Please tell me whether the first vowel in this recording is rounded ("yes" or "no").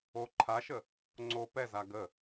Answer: yes